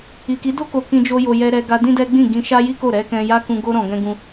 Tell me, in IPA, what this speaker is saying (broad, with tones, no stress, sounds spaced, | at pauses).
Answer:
i˨ k i˨˦ d o˦ k o˧ k ĩ˧ d͡ʒ o˧ j o˨ j ɛ˧ ɾ ɛ˧ ɡ a˧ d ĩ˦ d ɛ˦ ɡ͡b ĩ˦˨ ɡ ĩ˧ ʃ a˦ j i˦ k o˦˨ ɾ ɛ˨˦ k ɛ̃˧ j a˦ k ũ˧ ɡ o˦ ɾ ɔ̃˧ ɡ ɛ̃˦ ɡ ũ˦